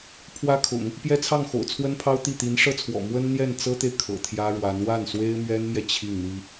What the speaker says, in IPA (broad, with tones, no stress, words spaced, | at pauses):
pʰwä˥kʰʊ̰˨˩˦ŋ | pjɛ˥t͡sʰɑ˥˩ŋxo̰˨˩ʊ̯ t͡sʰwə˥npʰɑ˥ʊ̯ t̪i˥˩ t̪i˧˥n ʂɤ˥˩t͡sʰwɔ̰˨˩ mwə˥nn̪jɛ˥˩nt͡sɤ˥t̪e˨ɪ̯ kʰɤ̰˨˩t̪ʰjä˥ɻwa˧˥n wa˥˩nswe˥ɪ̯mɥɛ˥nmjɛ˨ t͡ɕʰi˥˩ŋn̪i˥